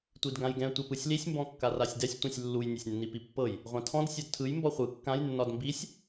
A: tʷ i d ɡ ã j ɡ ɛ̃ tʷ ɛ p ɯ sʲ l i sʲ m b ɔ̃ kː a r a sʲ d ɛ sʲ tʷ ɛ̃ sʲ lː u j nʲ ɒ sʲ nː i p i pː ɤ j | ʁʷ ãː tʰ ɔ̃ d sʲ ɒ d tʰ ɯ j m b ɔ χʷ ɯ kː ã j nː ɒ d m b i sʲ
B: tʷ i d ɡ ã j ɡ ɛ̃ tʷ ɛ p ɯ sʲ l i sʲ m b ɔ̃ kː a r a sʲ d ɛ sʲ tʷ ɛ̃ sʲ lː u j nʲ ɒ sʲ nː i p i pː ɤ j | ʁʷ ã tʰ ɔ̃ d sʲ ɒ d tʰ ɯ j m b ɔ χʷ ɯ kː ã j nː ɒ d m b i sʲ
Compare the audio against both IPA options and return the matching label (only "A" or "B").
B